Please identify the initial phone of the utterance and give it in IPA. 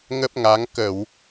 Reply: ŋ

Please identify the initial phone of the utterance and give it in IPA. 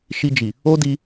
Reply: ʃ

